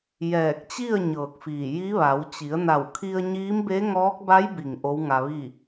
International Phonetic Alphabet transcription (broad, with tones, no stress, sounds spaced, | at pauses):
j ɛː˧˩ k̚ t͡ɕ i˥˨ ə̯ ɲ ɤː˧˩ k̚ f iː˧˩ j i˧˥ ʋ a˩˧ w t͡ɕ i˩˧ ə̯ n a˧˩ w kʰ i˧ ə̯ ɲ iː˧˥ m b e˧˥ ŋ ɔː˧˥ k̚ b a˧˥ j b i˩ ŋ ʔ o˧˥ w ŋ a˧ ʋ i˥˨